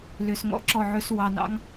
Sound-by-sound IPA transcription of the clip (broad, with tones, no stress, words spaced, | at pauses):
lø˨sŋɔ̰˦ǁɔ˨ʕɵ˨˦s wɑ˨nɑ̰˧ŋ